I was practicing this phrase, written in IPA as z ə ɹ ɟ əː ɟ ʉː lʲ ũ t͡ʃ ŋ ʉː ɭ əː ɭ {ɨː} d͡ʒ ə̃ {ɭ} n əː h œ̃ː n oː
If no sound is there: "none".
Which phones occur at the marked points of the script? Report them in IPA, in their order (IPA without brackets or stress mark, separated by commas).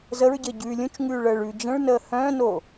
ʉː, ɭ